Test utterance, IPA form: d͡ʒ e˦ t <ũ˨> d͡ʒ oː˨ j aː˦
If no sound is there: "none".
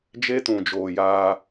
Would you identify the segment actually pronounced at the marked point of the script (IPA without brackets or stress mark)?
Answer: ũ˨